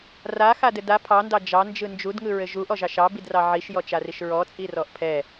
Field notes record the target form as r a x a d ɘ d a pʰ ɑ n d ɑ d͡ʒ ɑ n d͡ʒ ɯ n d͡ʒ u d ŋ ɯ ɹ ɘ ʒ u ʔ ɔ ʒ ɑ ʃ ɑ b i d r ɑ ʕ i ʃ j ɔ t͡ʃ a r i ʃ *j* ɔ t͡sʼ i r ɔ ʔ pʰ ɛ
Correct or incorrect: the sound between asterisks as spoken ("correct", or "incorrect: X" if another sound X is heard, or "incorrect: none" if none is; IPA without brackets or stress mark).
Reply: incorrect: ɹ